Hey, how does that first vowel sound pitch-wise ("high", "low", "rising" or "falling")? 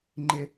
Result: high